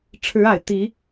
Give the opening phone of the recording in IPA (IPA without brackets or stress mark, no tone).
ʈ͡ʂʰ